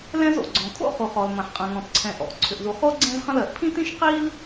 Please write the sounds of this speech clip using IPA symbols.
lɛ̃˥zo̰˩ ɡ͡ǀɔ̃˩kʰo̰˥χu˩ χɔ˩lmɐ̃˩ħqʼɐ̃˩ ŋɔ̃˩tǀʰɛ̃˩ ʔɔ̰˩ʔǀʰʏ˩ʔzu˩χo˥ ɡ͡ǀɛ̃˥zχɐ̃˥lɜ˩ʔ pʰĩ˥tĩ˥ʃ qi˥l

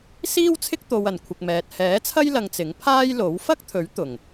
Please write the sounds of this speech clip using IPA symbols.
siː˥wt͡sʰɪ˥k̚t̪o˨wɐ˨˩n kʷʰɪ˨k̚mɛː˨t̚ hɛː˨˥t͡sʰɐ˥j lɐ˧ŋt͡sɪ˨˥ŋ pʰaː˥jlo˨˥w fɐ˥k̚t̪ʰɵ˨˥ɥ t̪ʊ˨˩ŋ

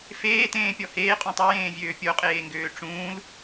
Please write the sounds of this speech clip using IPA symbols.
feːtẽːpʲɔ heːqʼũ tˤojẽːvʲøː pʲoqʼeːŋɡøː ʈ͡ʂũːl

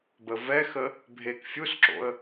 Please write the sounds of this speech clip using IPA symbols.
bəvɛxə | bʱek fʲusǁo̰ə̯

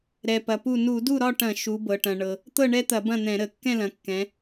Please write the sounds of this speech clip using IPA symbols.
ɾɛ˩pɐ˩pu˧˩ nu˧˩˧du˥˨ɾɒ˥˨ʈɐ̃˧˩˧ ʃu˩˧bɤ˩ʈɐ̃˩ ɳɤ˩ | t̪ɤ˥˨ɳɛ˦t̪ɐ˧˩˧ bɐ̃˥˨n̪ɛ̃˧˩˧ɾə˧˩˧ kːɛ̃˥˨lɐ̃˩˧kːɛ̃˩˧

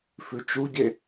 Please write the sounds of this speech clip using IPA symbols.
fʉt͡ʃuɟe

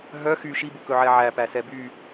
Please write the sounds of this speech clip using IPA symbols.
ɦœ xy ʃibukɵʕɛ ʕæpæsɛ by

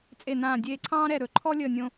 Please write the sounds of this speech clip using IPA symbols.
t͡sʼe˧˩nãː˧˩ dʲeː˧˩ǀʰɑ̃ː˥ɾɛ˧˩ɾɵ˨˩˦ ǃʰɔ˥lʲəː˧˩ nʲõ˧

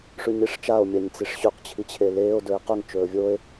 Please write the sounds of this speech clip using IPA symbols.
ʂʉɲiʂt͡ʃao̯ mʲaɲt͡siʂɕʉq t͡ɕʰit͡ɕʰeleːo̯ dɵe̯qɵŋ t͡ʃɵːvʲoːe̯

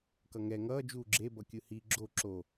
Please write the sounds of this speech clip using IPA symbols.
kʌŋɛ ŋʌː d͡ʒuːɡ͡ǁe bʌkʲɯhi ɡ͡ǁo ǁo

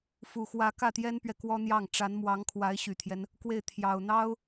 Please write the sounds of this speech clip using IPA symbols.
fu˨˩xwä˧˥ kä˥˩t̪jɛ˥npɥɛ˨ kwɔ˥n̪jɑ˥˩ŋ ʈ͡ʂa˧˥nmwɑ˧˥ŋ kʰwa˧˥ɪ̯ɕy˨˩t̪ʰjɛ˦n | kwe˥˩ɪ̯ t̪ʰjɑ˨˩ʊ̯ n̪ɑ˥ʊ̯

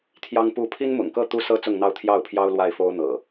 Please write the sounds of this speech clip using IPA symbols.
t̪ʰjɑ˦ŋpu˥˨ pʰi˦nmʊ̰˨˩ŋkɤ˥˨ t̪u˦sɤ˦ t͡sʊ˥˨ŋn̪ɑ˥˨ʊ̯ t̪ʰjɑ˥˨ʊ̯pʰjɑ˦ʊ̯ lwa˥˨ɪ̯fo˦ʊ̯n̪ɤ̰˨˩

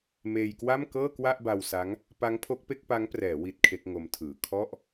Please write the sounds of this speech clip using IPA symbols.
meː˧jkwa˥˩m kɤː˥˩kwa˥˩ʔba˧wsa˦˥ŋ | pa˦˥ŋ pʰo˦˥k̚pe˥˩k̚pa˦˥ŋprɛː˩˦ wi˦˥t̚kʰe˦˥k̚ŋo˦˥mtʰɯː˨˩ kʰɔ˥˩ʔ

